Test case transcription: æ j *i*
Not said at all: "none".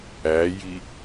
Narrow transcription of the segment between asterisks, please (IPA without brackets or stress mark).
i